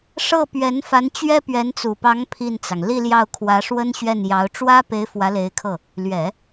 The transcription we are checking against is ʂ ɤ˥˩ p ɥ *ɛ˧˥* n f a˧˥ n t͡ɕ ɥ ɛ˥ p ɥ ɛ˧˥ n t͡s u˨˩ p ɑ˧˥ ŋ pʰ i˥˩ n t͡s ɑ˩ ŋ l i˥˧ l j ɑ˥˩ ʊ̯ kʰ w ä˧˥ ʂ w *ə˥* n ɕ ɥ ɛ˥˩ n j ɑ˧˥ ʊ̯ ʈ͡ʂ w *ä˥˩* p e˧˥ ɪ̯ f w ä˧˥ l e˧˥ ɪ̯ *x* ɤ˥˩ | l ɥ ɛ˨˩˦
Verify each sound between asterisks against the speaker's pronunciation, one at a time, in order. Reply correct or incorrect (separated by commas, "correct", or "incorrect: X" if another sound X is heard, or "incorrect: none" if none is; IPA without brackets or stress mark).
correct, correct, incorrect: ä˥, incorrect: kʰ